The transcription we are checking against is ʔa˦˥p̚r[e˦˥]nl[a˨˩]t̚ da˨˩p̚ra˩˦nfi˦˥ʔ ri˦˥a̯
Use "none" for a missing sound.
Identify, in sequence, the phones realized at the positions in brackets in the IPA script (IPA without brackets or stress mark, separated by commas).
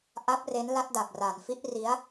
e˦˥, a˦˥